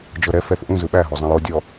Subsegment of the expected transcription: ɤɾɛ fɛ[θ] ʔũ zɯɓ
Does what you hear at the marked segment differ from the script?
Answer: no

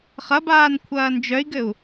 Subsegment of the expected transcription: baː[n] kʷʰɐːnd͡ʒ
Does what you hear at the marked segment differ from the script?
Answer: no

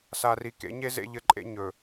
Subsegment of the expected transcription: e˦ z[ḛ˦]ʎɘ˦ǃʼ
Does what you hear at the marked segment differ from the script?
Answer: no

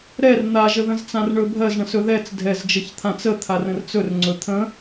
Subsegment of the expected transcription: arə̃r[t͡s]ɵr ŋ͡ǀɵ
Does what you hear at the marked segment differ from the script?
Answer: no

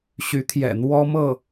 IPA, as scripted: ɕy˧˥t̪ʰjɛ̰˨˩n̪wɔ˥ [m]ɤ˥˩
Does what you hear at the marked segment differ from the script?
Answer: no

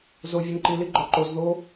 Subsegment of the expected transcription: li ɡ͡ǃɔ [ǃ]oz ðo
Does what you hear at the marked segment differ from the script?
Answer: no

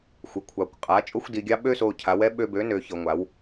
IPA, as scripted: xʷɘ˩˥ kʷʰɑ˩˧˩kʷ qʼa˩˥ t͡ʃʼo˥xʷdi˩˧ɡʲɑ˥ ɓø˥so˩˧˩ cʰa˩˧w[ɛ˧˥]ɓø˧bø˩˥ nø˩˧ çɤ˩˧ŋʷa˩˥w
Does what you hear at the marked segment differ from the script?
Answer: no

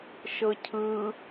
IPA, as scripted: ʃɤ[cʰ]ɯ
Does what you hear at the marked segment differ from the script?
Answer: no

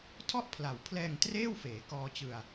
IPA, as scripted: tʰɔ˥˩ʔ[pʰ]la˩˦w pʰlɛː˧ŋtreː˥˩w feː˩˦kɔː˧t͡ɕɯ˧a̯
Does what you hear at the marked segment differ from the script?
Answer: no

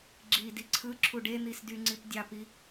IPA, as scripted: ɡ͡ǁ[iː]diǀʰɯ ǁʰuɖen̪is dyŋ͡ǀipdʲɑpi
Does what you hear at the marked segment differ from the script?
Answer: no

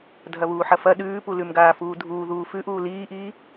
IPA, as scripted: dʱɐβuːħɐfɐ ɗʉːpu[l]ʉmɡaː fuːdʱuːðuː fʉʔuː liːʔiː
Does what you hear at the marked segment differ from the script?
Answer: no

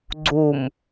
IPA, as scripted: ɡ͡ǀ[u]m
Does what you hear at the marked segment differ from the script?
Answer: no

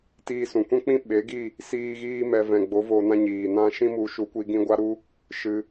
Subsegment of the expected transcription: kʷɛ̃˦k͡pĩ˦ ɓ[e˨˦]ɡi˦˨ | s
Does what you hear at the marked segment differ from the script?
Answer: no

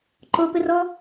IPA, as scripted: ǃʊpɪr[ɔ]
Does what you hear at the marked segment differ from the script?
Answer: no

